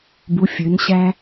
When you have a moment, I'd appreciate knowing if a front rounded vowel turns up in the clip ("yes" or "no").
yes